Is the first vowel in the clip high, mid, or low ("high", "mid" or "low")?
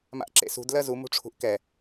low